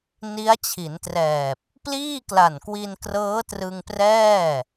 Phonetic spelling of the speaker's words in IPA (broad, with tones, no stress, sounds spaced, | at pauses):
n i˦˥ a̯ t͡ɕʰ i˩˦ n t r ɛː˨˩ p̚ | p l iː˥˩ k l a˨˩ n k w i˧ n k r ɤː˦˥ t r ɯ˧ ŋ p r ɛː˥˩